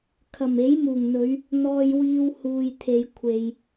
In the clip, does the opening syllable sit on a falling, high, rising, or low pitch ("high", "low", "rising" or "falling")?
low